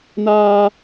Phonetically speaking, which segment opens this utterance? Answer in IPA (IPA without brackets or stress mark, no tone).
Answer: n